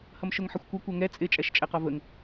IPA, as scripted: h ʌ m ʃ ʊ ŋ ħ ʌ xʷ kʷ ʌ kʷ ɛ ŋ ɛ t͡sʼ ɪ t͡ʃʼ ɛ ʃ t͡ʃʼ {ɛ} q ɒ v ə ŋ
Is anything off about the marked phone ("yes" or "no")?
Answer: no